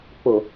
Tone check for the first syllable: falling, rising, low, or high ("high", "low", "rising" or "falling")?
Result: low